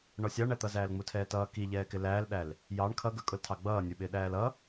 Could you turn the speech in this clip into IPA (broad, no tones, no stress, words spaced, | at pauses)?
ɳɔsʲɑɳæt̪ʌ zæːlŋ͡mutʰɛːtʌː kiʎɛːkɪ læːlɗæl | jɑɳ kʰʌɡə˞kʼʊltʰɑ ɡ͡bʌːnʲə˞ ɓɪːɗæːlʌ